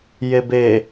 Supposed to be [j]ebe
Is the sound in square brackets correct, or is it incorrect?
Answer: correct